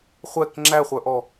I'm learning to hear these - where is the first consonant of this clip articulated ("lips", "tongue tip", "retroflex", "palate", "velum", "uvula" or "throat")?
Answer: uvula